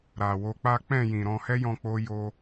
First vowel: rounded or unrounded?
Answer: unrounded